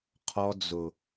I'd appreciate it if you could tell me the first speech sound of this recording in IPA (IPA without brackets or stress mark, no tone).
qʰ